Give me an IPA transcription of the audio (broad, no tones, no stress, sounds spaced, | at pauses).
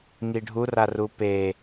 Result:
ŋ i ɖʱ u r a r u p e